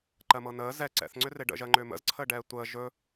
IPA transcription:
ǃɜmɤnəː zɛ ǀɛ̰θŋ͡ǀʏ reɖə̰ʒɜŋ͡ǃʏː mə̰zǀʰəːɖɛː tʷəː ʒɵ

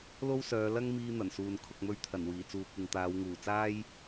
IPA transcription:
lo˥wsœː˨˧ lɐ˥ŋmiː˧ n̪ɐ˨˩nsuː˨n kʰʊ˨k̚mɵ˧ɥ t̪ʰɐ˨˩nwiː˨˩ t͡suː˨kʷɪ˨ŋt̪aː˨˧wŋuː˨˩ t͡saː˥j

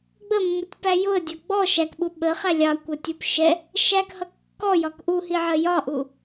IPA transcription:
ɡ͡bəmːutʲpæ jʊə̯dʲʌ ɡ͡bɔ ʃækɓu ɓəχæ lʲɑkʷətʲup ʃɛ | ʃækhʌ kːɔjɒk ʔuhiʕɜ jɒʔu

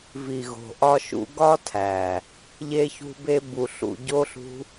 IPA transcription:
vi˨ɣo̤˨ ʔɒ˧ʃṵ˧ɡɒ˦tʰæ˨ | ʎe˧çṳ˧be˧ bu˨ɬṵ˨ ɟo˦ɬṳ˦

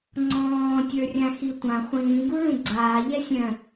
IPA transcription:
ŋ͡ǀɔ̃ːtʲə˞rʲã xitʷã χʷĩːɡuɭũ ɡ͡ǀaː ʎɛsʲœ̃

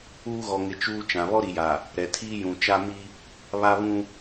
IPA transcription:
uː˦ ɣɔ˨ŋɪ˨ t͡ʃuː˦ t͡ʃã˨ βɔ˦ɾi˨ja˨ | ɾɛ˨tʰiː˦jũ˨ t͡ʃa˦ mi˦ | βa˦βũ˦

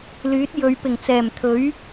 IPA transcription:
lyː˨˥t̚jɵ˨˧ɥ pɪ˨˩ŋt͡sɛː˨˩mt̪ʰɵ˨˥ɥ

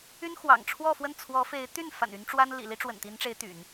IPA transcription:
y˥nxwɑ̰˨˩ŋʈ͡ʂʰwɔ˥˧fwə˥˩n t͡sʰwɔ˧˥fe˧˥ɪ̯t̪y˥˩n fa̰˨˩ny˧˥nʈ͡ʂwa˥nlḭ˨˩ li˥ʈ͡ʂwə̰˨˩nt̪i˧˥nʈ͡ʂe˧˥ɪ̯ t̪y̰˨˩˦n

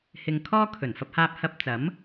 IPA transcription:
hɪ˧ŋ kʰɔː˥ kʰɵ˨˩nfɐ˧p̚haː˧p̚ hɐ˧p̚ t͡sɐ˨˥m

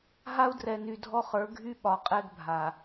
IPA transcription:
ɦa˦u̯drɛ˨ny˨ dʱɔ˦χə˞˨˦ ɡʱy˦ɓɒ˨ qʼɛ˦ɡbʱa˨

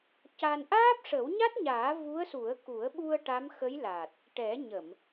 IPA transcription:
ca˧n ʔaː˦˥p̚ʂə˨˩˦wɲa˦˥t̚ɲaː˨˩˦ vu˧˥ə̯su˨˩˦ə̯ku˨˩˦ə̯ɓu˧ə̯ ʈa˧˥mxə˧˥jla˨˩t̚ | ʈɛ˨˩˦ɲə˨˩˨m

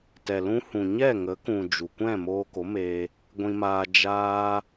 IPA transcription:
tɛ˨lũ˧hũ˨ɲɛ˦˨ ŋə˨˦kũ˨ d͡ʒu˨kʷɛ̃˦˨ moː˧ko˨˦meː˧ | ɡʷĩ˧maː˧ d͡ʒaː˧

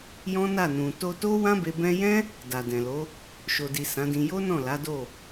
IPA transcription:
jɔ̃˦na˦˨nũ˨ to˧to˦wã˦be˧ bɛ̃˧jɛ̃˦ | da˨dɛ̃˨lo˨˦ | ʃo˨di˨ sã˨˦dĩ˧ jo˦nɔ̃˦˨ la˨˦do˦˨

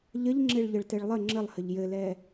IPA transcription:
ʎəʎŋ͡ǁeɭʎəɭtɛɭ lˠə ŋ͡ǁəlˠhəʎ jɘlɛ

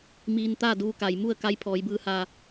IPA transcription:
miː˧n t̪aː˥˨duː˧ka˩jmu˥˨ə̯ ka˧˥jpʰɔː˩˧jbɯː˧ha˧˩

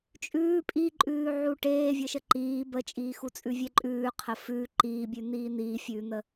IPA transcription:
t͡ʃʼʉː pʼiǃʼʉːʕu ʈeːvʲəʃə ǃiː bət͡ʃʼiːxut͡sʼʉ vʲɛǃʼʉːqʰə fʉː ǃiːbʲʉ n̪iːn̪iːfʲʉːn̪ə

